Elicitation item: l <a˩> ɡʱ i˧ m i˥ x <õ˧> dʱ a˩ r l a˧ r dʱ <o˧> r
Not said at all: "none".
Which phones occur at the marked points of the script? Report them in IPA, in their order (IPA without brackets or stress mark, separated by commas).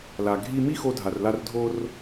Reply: a˩, o˧, o˧